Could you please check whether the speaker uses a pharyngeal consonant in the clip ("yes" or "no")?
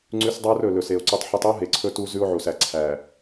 yes